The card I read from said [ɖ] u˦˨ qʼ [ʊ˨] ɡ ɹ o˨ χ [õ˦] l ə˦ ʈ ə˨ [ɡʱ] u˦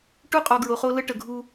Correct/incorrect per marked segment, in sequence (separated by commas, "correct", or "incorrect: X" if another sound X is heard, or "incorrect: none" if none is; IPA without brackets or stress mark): incorrect: ʈ, incorrect: ɔ˨, incorrect: o˦, correct